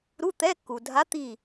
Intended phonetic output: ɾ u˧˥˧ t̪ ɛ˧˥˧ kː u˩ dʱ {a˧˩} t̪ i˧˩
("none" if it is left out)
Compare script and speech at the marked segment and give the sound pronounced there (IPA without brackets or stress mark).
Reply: a˧˥